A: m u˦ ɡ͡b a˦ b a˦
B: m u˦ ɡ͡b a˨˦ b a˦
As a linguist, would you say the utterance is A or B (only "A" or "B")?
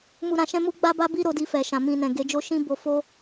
A